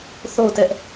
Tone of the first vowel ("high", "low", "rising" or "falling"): falling